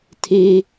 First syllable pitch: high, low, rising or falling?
high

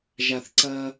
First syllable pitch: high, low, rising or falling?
low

